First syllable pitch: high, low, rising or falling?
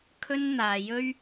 high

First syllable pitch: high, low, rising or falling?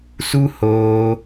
high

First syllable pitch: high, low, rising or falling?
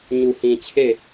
low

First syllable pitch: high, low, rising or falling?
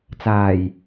low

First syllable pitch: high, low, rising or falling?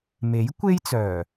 rising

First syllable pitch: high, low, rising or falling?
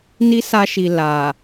high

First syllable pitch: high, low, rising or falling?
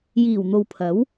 low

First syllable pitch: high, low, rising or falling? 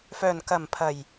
low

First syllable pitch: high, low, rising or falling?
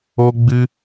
high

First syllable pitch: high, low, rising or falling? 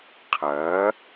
rising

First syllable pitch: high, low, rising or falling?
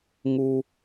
high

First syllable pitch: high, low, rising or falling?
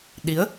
rising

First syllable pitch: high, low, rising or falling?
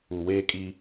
low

